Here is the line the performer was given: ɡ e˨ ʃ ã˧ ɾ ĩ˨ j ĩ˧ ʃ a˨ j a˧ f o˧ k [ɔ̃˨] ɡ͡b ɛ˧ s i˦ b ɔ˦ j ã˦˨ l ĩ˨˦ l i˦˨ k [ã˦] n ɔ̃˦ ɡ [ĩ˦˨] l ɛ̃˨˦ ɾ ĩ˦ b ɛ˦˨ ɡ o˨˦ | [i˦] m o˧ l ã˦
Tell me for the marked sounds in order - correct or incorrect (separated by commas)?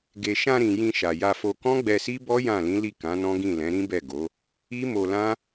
incorrect, incorrect, correct, correct